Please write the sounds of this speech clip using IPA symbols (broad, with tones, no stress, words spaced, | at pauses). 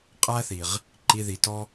qʼæ˦θi˨ʁ | ǃi˧ði˨tɔ˦